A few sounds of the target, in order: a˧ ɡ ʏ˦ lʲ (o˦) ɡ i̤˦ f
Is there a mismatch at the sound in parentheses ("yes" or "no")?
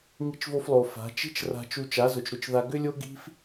no